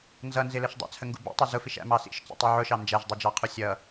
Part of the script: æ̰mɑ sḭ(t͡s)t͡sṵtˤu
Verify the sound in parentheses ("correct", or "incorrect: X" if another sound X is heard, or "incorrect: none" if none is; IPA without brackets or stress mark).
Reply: incorrect: ʃ